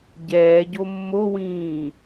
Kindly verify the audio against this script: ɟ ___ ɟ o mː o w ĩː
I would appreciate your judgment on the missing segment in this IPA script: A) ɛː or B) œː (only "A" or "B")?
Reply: A